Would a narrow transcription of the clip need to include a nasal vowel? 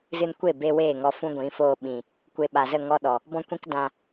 yes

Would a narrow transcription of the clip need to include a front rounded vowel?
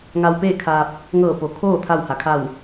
no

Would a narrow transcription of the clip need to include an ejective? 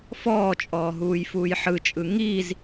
yes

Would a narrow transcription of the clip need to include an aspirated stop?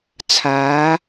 yes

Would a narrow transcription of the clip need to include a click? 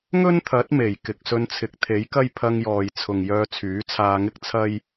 no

